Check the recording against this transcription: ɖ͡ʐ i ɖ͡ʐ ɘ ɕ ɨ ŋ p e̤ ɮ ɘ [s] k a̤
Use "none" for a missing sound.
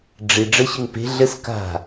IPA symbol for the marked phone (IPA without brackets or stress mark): s